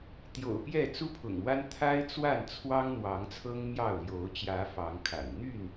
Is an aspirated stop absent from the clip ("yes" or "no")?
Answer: no